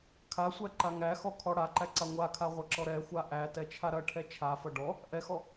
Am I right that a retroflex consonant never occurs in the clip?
no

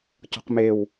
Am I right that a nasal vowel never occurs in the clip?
yes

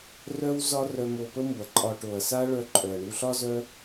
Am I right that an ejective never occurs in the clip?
no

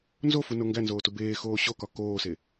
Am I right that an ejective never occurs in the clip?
yes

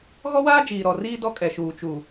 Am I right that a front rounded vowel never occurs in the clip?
yes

